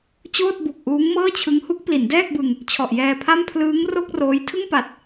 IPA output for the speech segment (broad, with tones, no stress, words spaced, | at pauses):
t͡ɕoː˥˩t̚bu˨˩k̚ ʔuː˦˥ŋmɤː˥˩t͡ɕʰɯ˦˥ŋ hu˦˥k̚pli˩˦ndɛː˥˩k̚bɯ˧ŋ | t͡ɕʰɔ˨˩ʔjɛː˧pʰa˥˩m pʰlɯː˦˥ŋro˥˩k̚ roː˦˥j tʰɯ˥˩ŋpa˨˩t̚